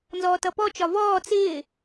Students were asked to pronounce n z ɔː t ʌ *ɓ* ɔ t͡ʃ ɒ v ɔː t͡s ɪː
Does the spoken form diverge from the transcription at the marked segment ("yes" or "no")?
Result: yes